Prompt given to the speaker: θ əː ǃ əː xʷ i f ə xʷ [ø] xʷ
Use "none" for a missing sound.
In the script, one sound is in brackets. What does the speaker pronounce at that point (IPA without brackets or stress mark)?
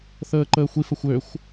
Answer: ø